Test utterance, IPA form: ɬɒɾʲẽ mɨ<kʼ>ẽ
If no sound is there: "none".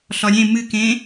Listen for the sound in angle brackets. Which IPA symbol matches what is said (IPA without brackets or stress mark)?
k